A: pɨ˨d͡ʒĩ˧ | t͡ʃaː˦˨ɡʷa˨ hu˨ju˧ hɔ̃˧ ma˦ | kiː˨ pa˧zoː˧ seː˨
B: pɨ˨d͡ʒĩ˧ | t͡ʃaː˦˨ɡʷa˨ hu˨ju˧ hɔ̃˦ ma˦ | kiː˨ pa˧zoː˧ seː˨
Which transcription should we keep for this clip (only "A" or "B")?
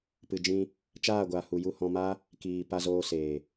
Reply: A